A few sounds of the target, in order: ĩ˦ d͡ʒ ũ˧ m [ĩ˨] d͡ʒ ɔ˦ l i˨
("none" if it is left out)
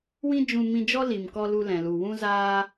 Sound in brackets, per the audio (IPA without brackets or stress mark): ĩ˧